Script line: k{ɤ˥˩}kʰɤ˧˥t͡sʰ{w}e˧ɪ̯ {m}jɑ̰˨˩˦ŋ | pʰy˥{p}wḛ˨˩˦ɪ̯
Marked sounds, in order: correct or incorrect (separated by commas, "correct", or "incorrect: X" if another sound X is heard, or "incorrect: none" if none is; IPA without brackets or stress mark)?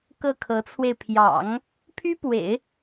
correct, correct, incorrect: pʰ, correct